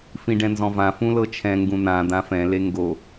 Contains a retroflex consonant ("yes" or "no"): yes